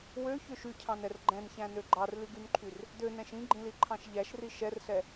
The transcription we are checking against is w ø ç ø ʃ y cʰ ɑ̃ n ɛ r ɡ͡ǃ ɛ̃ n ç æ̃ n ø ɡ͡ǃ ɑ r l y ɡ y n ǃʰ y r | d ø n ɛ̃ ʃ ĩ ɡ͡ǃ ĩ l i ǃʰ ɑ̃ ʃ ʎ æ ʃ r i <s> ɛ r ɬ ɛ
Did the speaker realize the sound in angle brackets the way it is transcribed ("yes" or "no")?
no